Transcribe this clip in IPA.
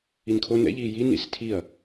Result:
i n kʰ o n ɛ̰ ʎ iː j i n ḭ s tʰ i ɐ̯

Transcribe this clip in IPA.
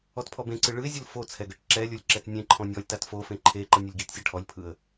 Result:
ɔ t pʰ ɔ b ẽ ǀ ɯ ɭ ɯ ɪ̯ zʲ ɯ l f o t͡sʰ ɛ ɡ ɤ ʈ ǁ ɛ lʲ o lʲ ǁ ɛ t nʲ ẽ ǃʰ ɔ̃ nʲ ɔ lʲ t a t f o f ẽ ǃʰ e ǃ ɤ nʲ ɤ lʲ ɡ i t sʲ ɤ ʈʰ ɔ lʲ pʰ ɯ ə̯

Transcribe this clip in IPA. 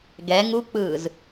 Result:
ɡ ɛ ŋ u k͡p ɯː z

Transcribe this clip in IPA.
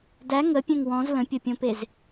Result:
d æ ŋ ə pʲ ɛ̃ ŋ w ɔ̃ z l ə̃ pʲ ʌ pʲ õ p e z

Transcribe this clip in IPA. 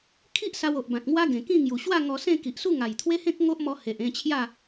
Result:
kʰ i˦ ʔ s a˧ w o˨ ʔ b ã˨ t̚ ŋ w a˦ ɡ ẽ˨˩ k ĩ˥˧ ŋ j u˨˩ ɕ w a˥˧ ŋ ɔ˧ s ẽ˥˧ k i˨ ʔ s u˥˧ ŋ a˨˩ j t̪ʰ w e˦ h ẽ˦ k̚ ŋ o˦ ʔ m ɔ˧ h e˨ ʔ ẽ˧ t͡ɕʰ j a˥˧

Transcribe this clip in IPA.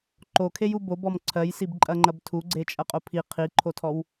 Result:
ǃ o kʰ e j u b o b ɔ m ǀʰ ɜ j s i b ǃʼ ɐ ŋ͡ǃ ɐ b tʰ u ɡ͡ǀ e t͡ʃʼ ɐ qʼ o pʰ i qʰ i ǃʰ o tʰ ɔ w

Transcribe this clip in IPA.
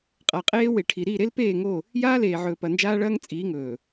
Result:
qʼ a˨ qʼ eː˦ w e˨ ʈʰ i˨ ɾ i˦˨ ɾ e˦ l p eː˦˨ ŋ o˦˨ | j aː˦ l eː˨ ʕ ɵː˨ p ɐ˨ n d͡ʒ aː˦ ɭ ɐː˦ ŋ t͡sʼ iː˨˦ ŋ ɵː˨

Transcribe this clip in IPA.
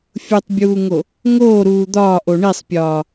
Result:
fʲ u tˤ bʲ uː ŋ o | ŋ oː ɾ uː d̪ ɒː ʔ o ɳ i sˤ pʲ ɒː

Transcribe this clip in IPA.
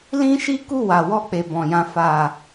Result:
l ĩ˦ ʃ i˦ k u˦˨ w a˨ w ɔ˧ k͡p e˨ b ɔ̃˨ j ã˨ f a˨

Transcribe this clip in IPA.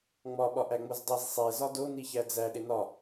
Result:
ŋ͡m ɒ ɓ ɒ ʔ æ ŋ͡m o z dˤ i z sˤ e z ɒ d o n i ç æ d͡z æ ɗ e n ɒ

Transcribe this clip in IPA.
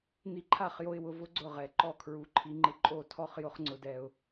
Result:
n̪ i˧ ǃʰ a˦˨ χ j o˧ ɪ̯ w ʊ˧ v ʊ˦ ɡ͡ǀ ʊ˦˨ ʁ ɛ˨ ǃ ɔ˦˨ kʰ ɹ u˨˦ ǃʰ i˧ ŋ͡ǃ ɪ˦ ǃʼ o˦˨ tʰ ɔ˦ χ j ʊ˦ χ ŋ͡ǀ ʊ˧ d ɛ˧ ʊ̯

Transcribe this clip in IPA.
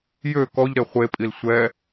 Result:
j ø k ɔ ʎ ɾ e χʷ e pʼ i l sʷ ɛ

